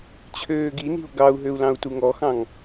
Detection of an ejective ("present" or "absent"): absent